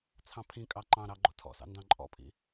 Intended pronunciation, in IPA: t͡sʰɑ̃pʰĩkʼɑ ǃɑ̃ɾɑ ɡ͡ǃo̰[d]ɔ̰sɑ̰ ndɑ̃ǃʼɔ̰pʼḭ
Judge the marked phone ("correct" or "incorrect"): incorrect